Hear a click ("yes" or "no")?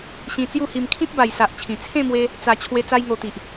no